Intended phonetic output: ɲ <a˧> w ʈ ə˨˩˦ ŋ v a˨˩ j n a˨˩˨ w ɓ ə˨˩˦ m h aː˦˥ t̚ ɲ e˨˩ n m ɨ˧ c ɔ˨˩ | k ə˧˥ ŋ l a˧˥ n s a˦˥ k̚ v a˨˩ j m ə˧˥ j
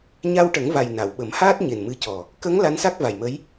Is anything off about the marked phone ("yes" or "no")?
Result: no